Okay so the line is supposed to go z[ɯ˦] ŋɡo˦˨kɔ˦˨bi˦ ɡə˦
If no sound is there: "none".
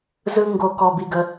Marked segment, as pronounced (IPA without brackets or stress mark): ɯ˦